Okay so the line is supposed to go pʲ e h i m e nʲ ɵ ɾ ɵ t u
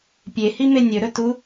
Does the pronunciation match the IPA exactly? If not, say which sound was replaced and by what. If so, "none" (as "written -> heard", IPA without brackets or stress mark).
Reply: none